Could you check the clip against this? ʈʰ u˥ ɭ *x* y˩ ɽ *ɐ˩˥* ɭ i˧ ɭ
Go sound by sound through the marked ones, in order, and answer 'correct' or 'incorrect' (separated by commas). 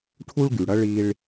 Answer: incorrect, incorrect